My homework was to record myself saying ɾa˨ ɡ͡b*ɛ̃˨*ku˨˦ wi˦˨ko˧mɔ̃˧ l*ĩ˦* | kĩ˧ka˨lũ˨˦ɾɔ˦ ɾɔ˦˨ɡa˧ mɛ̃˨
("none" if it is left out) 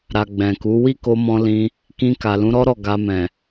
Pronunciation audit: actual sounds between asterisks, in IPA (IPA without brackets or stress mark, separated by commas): ɛ̃˨, ĩ˧